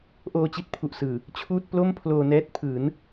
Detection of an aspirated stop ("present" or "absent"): present